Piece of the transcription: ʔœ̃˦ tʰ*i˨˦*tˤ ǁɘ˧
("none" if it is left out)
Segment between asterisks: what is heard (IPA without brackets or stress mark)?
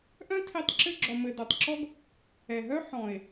i˧